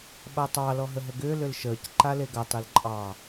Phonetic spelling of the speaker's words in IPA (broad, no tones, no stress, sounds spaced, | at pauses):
ɓ a tˤ ɑ l ɔ ɦ ə ɦ ə ɡ ʏː l ʏ l ʃ əː c ǃ a l e ɡ a tˤ e l ǃʼ ɑ